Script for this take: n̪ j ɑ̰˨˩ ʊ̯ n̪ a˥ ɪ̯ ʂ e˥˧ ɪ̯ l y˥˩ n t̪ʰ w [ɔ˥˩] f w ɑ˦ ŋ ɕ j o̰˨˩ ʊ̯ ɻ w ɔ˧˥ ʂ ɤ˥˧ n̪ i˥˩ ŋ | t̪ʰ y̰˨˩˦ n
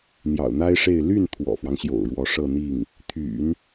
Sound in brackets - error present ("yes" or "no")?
yes